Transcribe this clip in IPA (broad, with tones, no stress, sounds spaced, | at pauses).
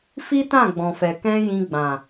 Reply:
f i˦ t ã˦˨ ɡ͡b ɔ̃˨ f ɛ˨ k ɛ̃˧ j ĩ˧ ɡ͡b ã˨